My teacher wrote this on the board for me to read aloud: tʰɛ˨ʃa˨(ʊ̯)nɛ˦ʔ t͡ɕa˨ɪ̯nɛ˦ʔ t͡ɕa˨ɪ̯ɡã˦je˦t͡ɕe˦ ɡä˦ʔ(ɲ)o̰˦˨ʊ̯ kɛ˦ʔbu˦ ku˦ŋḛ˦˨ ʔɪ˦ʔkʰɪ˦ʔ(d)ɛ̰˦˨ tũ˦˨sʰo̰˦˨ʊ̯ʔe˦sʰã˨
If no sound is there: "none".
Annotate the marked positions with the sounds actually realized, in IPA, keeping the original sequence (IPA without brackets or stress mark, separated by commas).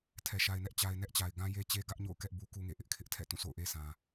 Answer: ɪ̯, ɲ, tʰ